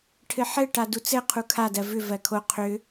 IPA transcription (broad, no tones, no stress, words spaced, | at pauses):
ʈʰɘħɘʈa dut͡sɘ qʰukʰadɜ vʏ vɜkʰo qʰʏ